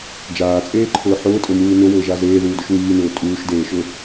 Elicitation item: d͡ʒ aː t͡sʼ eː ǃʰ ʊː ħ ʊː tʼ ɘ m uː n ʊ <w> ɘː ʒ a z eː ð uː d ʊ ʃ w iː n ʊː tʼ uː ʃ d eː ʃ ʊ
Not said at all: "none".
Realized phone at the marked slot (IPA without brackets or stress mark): w